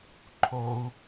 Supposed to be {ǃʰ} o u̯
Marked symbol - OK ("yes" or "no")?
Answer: yes